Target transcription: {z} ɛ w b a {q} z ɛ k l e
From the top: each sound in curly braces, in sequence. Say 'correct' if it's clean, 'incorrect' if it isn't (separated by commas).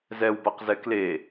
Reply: correct, correct